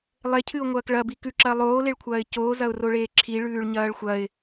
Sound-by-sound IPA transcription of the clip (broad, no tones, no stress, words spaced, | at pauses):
lˠecʰɨʊ̯ŋʷɐːk ɭɐbi kʉǁɐː lˠoːleɭkʷʰɐːɪ̯ coːzɐʊ̯roɭeː ǁʰiɭʉːɭɲɐːɭ xʷɐɪ̯